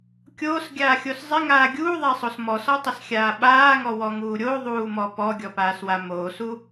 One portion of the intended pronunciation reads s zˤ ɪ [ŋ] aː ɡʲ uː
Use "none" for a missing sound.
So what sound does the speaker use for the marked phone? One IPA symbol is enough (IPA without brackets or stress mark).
ŋ